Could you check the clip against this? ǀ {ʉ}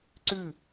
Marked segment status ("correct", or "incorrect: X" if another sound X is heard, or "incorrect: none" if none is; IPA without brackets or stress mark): correct